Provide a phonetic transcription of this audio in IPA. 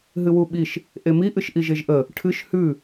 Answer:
ɦɨwuɓiʃ | ʔemi ʔɨʃʔiʒeʒʔə | ʈʰɨʃ hʉ

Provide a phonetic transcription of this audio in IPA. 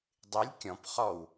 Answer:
dˤɪlʲ kʲɔ̃p χɔw

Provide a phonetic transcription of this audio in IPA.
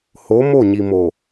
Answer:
ho˨˦ mo˦˨ɲi˨mo˨

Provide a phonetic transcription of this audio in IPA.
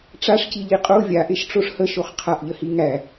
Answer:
ʈ͡ʂaʂciʎi qʼo vʲaʔeʃʈ͡ʂoʂ həʃoχ qʰaʔʎəhi ŋæ

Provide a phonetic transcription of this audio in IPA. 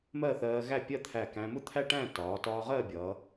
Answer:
mɜ˥˧θɜː˧ ɣæ˥˧pʲɜ˥˧ t̪ʰæ˧˩kæ̃˧mʊ˥ t̪ʰæ˥ʈæ̃˥˧ tɒː˩˧tɒː˧ʁɜː˥˧bʲʌː˩˧

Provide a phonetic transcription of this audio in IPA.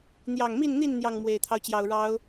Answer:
n̪jɑ˨˩ŋmi˥˨nn̪i˥˨n n̪jɑ˥˨ŋmwe˨˩ɪ̯t̪ʰɑ˦ʊ̯t͡ɕjɑ˨˩ʊ̯ ɻɑ˨˦ʊ̯

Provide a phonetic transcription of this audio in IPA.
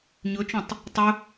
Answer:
ɲɵt͡ʃõtˤ | tˤɵ

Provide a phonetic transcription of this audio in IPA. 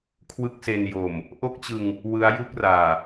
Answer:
kʰwɯ˥˩k̚se˧njo˨˩m | ʔo˥˩k̚t͡ɕɯ˧ŋ | wɯ˦˥a̯ ju˦˥k̚raː˨˩

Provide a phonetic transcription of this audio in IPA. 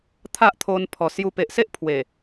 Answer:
t̪ʰa˦ʔt̪ʰo˧n pʰɔ˨˩sju˧ pe˨ʔse˦ʔpʰwe˨˩

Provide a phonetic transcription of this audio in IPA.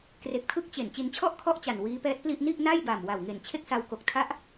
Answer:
kre˨˩k̚tʰɯ˥˩k̚ t͡ɕe˨˩n t͡ɕi˧nt͡ɕʰɔ˥˩ʔ kʰɔ˥˩ʔt͡ɕa˨˩n wiː˦˥pɛː˦˥t̚pli˥˩ʔ ni˥˩ʔna˥˩jba˨˩m wa˨˩wŋe˨˩n t͡ɕʰe˥˩k̚sa˧wko˨˩k̚ tʰa˦˥ʔ

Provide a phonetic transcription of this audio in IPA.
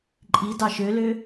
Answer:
ǃʼidɑ ʃølø

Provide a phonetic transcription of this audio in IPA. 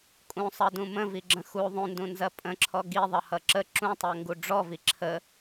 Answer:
kʼũsˤʌdũ mə̃viɡ͡ǁə̃ xu ðˤũndũnzɐ pʼə̃ǁʰɔ ɡiðˤʌhʌ ǁə ǁũtˤɜŋɡu ɖ͡ʐɔvi ǁʰə

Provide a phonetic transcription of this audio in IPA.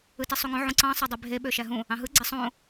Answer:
ɯtisˤuŋõ ʕũǀɑ̃ sˤɑdˤybʱe ɓøʃæɦũ | ɑ̃ɦɯ ɡ͡ǀesˤõ

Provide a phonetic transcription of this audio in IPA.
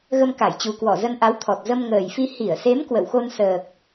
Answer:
ɣə˧mka˧˩jt͡ɕu˨˩kwɔ˧˩ zə˧nʔa˨˦wt̪ʰɔ˨˩t̚ zə˧mŋəː˨˩jfi˧ hi˧˩ə̯se˨˦m kwə̰˧˨wxo˧nsəː˨˩k̚

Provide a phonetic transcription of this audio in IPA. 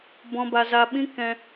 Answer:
bɔ̃˧ ba˧za˧ɓĩ˦ kɛ̃˧

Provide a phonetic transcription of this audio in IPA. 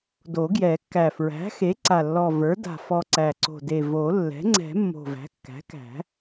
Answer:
do˨˩˦ɡjɛ˨˩˦kːæ˨˩ fɹæ̤˩˥xe˩˥ǀa˨˩lːɔ˨˩ və˞˩˥da̤˨˩ fɔ˨˩ ǀæ˨˩ǀo̤˨˩de˨˩ vo˨˩˦lːɛ̤˩˥ŋ͡ǀɛ̤˨˩˦ mːo̤˨˩væ̤˩˥kːæ̤˩˥kæ̤˨˩˦

